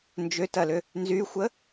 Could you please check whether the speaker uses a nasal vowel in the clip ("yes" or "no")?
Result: no